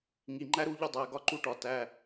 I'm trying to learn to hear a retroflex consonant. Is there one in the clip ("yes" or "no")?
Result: yes